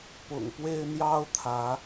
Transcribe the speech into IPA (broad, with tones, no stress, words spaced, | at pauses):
pʊ̰˨˩ŋpwe˦ɪ̯ n̪jɑ˦ʊ̯t̪ʰä˨˦